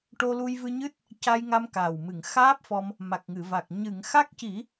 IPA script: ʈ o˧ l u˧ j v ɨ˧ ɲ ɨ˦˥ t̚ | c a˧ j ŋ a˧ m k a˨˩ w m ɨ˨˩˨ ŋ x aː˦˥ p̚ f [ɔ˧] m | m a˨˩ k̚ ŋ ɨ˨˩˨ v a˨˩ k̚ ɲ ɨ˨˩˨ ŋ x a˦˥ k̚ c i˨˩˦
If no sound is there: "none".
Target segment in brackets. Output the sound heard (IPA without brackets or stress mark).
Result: ɔ˧